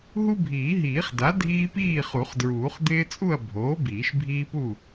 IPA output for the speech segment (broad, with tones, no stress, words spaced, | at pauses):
ɦu˦bʱiː˨˩˦ɦiː˨˩˦χda˩˥ dʱiː˦piː˥˨χu˨˩˦χdɹuː˨˩˦χ d̪ɪː˦t͡sʼu˥˨ɐ̯ bʱoː˩˥ biː˨˩˦ʃbʱiː˦pu˥˨